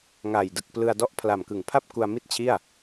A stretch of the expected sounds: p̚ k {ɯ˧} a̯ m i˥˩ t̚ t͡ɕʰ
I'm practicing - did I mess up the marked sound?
yes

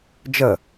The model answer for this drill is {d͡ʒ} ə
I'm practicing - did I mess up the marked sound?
no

